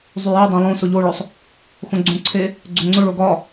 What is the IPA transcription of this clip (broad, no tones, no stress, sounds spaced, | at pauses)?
zˤ y j e dˤ ɛ̃ lˠ õ s ʊ ʎ o ɭ ɵ sˤ | x õ ɡ͡ǀ õ ǀʰ e | ɡ͡ǀ o ŋ͡ǀ ʊ ɭ o ɡ ɒ